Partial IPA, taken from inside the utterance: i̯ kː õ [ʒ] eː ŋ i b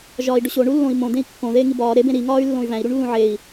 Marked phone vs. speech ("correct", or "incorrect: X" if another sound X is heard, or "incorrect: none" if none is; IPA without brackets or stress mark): incorrect: ð